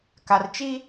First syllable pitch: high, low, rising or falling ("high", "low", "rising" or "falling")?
low